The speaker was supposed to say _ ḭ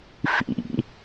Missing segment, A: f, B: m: A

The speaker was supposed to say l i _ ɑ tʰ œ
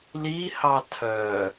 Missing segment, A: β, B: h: B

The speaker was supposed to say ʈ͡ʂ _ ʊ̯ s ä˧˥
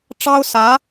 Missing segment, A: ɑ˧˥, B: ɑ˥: B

